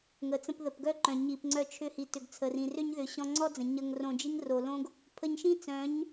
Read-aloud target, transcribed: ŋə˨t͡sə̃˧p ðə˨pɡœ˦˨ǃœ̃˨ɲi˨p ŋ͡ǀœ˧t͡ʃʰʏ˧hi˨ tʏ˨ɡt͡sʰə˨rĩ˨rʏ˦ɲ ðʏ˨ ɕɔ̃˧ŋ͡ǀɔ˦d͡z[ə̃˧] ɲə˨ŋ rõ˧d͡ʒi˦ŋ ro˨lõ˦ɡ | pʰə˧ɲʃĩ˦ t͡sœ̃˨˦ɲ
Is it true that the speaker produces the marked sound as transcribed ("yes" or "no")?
no